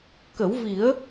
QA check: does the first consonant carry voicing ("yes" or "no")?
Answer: no